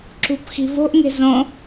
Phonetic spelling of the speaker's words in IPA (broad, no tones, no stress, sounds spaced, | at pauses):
ǁ ṳ p x i̤ v o̤ ʔ ŋ e̤ z õ